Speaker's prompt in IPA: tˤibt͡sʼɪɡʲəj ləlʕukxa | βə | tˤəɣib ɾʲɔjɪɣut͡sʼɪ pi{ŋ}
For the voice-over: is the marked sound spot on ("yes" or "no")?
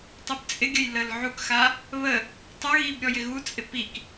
no